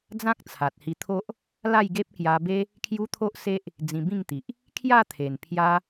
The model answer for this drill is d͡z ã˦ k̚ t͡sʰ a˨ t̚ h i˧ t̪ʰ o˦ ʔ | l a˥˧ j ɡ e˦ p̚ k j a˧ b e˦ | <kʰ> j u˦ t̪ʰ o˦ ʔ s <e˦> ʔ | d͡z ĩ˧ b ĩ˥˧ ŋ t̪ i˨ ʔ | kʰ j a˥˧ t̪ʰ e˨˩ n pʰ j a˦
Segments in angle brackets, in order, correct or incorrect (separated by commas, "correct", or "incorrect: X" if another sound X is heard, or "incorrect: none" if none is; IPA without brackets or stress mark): correct, correct